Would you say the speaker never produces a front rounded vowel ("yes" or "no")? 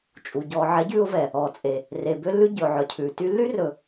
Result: no